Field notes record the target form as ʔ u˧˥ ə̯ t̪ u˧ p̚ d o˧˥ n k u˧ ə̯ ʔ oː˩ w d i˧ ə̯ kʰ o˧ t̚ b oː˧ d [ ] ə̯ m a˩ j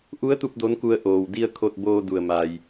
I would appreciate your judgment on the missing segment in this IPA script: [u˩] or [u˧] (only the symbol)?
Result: u˩